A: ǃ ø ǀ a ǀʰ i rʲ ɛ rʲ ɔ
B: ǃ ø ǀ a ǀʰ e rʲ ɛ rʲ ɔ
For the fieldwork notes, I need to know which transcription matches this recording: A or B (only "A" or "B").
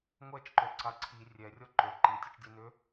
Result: A